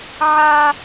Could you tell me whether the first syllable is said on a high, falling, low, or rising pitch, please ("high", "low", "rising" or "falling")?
high